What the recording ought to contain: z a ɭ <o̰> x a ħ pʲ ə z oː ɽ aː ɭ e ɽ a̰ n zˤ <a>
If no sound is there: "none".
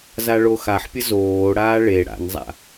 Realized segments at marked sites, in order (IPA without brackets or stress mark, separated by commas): o, a̰